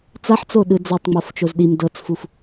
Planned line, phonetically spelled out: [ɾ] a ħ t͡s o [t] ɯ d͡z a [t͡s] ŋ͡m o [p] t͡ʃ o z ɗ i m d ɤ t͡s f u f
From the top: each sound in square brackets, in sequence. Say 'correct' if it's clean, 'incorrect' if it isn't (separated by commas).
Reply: incorrect, incorrect, incorrect, incorrect